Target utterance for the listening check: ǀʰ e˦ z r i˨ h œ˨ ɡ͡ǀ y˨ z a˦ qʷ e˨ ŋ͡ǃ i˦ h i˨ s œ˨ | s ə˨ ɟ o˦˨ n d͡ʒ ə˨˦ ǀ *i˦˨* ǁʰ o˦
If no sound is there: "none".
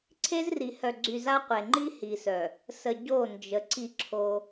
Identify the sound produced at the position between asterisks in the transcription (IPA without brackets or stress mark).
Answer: i˦˨